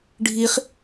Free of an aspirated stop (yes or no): yes